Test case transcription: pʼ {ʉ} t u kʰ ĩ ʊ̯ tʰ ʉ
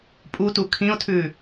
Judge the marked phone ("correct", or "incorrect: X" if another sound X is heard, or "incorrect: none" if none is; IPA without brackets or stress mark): incorrect: u